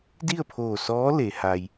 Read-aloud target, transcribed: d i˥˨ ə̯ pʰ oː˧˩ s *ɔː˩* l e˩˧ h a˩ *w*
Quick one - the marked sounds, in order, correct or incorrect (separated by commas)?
incorrect, incorrect